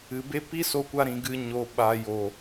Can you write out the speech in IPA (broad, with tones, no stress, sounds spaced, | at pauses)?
ɨ˨ b e˦ p i˦ s o˧ kʷ a˧ ɾ ĩ˨ ɡ ɨ˧ ɲ o˨ ɓ a˨ j o˨